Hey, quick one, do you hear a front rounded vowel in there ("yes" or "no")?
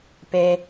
no